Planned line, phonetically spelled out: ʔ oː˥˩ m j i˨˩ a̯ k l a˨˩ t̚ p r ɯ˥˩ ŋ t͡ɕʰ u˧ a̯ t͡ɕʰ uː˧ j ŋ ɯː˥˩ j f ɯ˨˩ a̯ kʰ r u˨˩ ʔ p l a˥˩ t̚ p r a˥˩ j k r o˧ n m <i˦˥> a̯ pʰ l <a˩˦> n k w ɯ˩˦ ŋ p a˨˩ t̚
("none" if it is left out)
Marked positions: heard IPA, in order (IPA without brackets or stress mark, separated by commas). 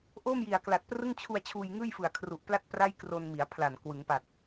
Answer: i˩˦, a˨˩